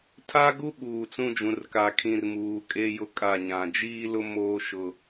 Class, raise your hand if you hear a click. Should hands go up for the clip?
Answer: no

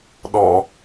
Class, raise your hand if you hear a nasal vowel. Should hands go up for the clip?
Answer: no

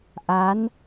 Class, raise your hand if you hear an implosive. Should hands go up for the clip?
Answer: no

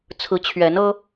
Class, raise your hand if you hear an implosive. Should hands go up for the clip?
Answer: no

